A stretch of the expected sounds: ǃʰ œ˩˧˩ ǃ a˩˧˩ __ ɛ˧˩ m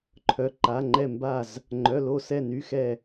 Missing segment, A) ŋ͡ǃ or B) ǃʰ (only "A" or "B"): A